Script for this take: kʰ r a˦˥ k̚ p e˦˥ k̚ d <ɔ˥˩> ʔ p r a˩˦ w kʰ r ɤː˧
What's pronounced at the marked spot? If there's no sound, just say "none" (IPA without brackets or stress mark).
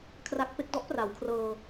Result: ɔ˦˥